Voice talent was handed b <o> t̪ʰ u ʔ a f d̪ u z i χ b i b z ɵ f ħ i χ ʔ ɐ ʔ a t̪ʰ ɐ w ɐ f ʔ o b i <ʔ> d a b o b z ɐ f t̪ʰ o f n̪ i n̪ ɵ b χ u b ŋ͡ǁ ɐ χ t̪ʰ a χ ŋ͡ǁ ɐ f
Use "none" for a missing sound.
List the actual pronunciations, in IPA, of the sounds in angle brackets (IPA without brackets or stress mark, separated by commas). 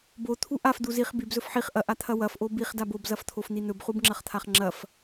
o, χ